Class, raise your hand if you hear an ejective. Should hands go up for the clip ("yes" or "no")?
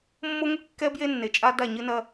yes